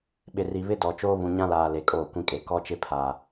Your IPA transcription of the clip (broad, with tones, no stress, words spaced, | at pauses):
ɓɪ˨ri˨βɪ˦ dɔ˨t͡ʃoː˦ βũ˨ɲã˦laː˨ le˨kʼoː˦˨kʷĩ˦kʼe˨˦ kɔ˦t͡ʃɪ˦pʰa˨